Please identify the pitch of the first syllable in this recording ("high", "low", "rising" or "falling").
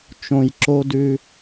low